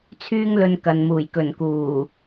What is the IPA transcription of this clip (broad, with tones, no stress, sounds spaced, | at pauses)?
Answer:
t͡sʰ yː˧ ŋ l ɵ˨ n k ɐ˨ n m uː˨˩ j k ɵ˨˩ n k uː˨˩